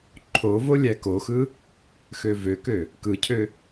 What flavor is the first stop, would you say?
click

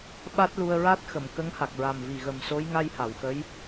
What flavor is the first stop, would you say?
implosive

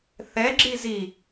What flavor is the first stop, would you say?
click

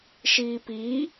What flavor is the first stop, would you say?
plain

